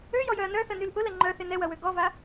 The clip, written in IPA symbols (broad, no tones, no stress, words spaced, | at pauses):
øjɔjœɐ̯ nœθənyl ʔʊlɛ ŋ͡ǃœθɪ nɛwɐwø ɡɔva